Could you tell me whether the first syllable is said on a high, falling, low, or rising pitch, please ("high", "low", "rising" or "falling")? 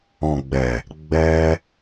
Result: low